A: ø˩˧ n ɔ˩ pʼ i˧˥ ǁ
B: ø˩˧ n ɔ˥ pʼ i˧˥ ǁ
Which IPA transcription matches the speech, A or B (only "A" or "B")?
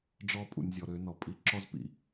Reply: A